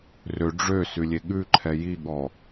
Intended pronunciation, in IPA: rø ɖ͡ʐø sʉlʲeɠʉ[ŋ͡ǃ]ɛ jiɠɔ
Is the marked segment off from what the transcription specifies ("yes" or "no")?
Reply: yes